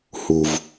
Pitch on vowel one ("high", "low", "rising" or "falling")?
low